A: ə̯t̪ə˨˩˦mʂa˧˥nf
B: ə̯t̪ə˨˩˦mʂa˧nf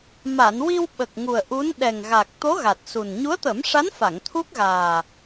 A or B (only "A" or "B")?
A